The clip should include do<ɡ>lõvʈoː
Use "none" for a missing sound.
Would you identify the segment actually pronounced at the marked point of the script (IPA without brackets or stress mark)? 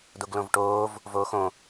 ɡ